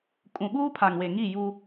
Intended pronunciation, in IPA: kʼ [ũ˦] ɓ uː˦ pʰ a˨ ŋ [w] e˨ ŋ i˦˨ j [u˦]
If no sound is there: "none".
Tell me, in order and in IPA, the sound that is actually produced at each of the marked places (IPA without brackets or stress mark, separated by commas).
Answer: ũ˨, w, u˦